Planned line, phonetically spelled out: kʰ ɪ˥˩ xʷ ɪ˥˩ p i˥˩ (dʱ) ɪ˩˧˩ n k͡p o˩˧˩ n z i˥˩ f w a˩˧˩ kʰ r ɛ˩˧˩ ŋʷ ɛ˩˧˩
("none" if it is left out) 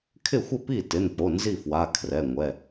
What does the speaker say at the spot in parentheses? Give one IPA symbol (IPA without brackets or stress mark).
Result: t